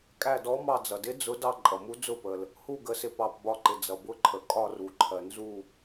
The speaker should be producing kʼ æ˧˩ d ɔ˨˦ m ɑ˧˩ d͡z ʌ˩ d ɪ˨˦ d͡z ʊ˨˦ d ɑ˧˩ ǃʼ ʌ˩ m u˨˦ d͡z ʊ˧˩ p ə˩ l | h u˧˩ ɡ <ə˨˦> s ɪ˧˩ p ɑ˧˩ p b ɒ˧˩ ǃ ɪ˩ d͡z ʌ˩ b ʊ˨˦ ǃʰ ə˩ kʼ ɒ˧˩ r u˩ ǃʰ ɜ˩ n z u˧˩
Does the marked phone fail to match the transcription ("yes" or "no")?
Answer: no